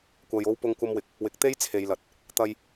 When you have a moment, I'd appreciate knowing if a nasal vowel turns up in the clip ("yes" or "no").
no